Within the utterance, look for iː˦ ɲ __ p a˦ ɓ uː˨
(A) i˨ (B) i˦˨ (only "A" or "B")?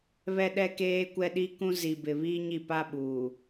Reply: B